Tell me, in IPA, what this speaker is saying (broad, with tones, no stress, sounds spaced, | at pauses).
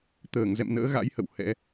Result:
t̪ əː˧˩ ŋ z ɛ̰˧˨ m n ə̰ː˧˥ ɣ a̰˧˥ j h ə̰˧˨ w h ɛ̰˧˥